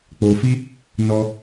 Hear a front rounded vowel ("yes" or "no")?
no